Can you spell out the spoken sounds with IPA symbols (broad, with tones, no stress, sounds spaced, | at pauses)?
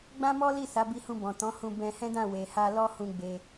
ɡ͡b ã˦ m ɔ˦ l i˦˨ s a˨˦ b i˧ h ũ˧ b ɔ̃˨ t ɔ̃˨˦ h ũ˧ b ɛ̃˧ h ɛ̃˦ d ã˦˨ w e˨ h a˧ l ɔ˦ h ũ˧ ɡ͡b e˧